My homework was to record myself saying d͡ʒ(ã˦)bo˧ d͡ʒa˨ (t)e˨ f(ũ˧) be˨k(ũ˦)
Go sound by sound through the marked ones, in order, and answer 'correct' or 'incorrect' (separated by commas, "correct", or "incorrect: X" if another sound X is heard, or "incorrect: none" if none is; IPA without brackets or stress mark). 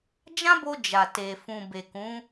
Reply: correct, correct, incorrect: ũ˨, incorrect: ũ˨˦